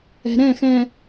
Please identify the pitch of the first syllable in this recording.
low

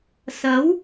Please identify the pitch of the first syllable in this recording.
rising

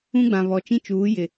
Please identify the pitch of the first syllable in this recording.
high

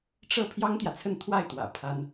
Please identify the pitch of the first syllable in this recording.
falling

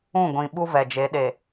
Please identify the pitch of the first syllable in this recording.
falling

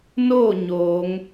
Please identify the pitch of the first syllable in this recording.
falling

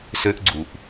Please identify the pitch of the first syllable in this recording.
high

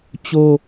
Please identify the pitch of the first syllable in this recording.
high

